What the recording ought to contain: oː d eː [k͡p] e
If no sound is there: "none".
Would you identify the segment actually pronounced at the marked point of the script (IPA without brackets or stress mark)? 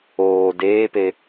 p